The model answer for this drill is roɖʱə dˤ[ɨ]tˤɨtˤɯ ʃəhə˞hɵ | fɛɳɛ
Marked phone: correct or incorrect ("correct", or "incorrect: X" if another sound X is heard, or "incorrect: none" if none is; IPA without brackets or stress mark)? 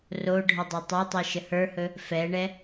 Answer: incorrect: e